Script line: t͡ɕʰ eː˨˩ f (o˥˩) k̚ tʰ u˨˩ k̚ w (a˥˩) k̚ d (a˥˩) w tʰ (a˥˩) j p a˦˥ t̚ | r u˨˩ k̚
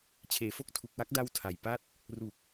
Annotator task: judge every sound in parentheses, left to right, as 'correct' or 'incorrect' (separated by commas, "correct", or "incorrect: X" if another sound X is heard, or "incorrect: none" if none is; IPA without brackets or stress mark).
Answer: correct, correct, correct, incorrect: a˨˩